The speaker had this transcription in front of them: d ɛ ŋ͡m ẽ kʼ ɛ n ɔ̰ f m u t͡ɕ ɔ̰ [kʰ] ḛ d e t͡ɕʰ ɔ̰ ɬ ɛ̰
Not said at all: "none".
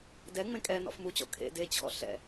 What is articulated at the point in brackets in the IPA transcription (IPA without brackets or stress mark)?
kʰ